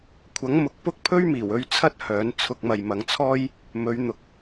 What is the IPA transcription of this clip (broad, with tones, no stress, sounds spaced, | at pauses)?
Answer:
kʷʰ ɐ˨˥ ŋ m ʊ˨ k̚ p ʊ˥ k̚ pʰ ɵ˥ ɥ m iː˨˩ w ɵ˥ ɥ t͡sʰ ɐ˥ t̚ h œː˨˥ n t͡sʰ ʊ˧ k̚ m ɐ˨ j m ɐ˨˧ ŋ t͡sʰ ɔː˥ j | m ɵ˨˧ ɥ n̪ ʊ˨ k̚